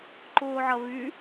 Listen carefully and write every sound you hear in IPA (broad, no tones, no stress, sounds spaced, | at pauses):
ǃ ʊː ʕ ɐ β y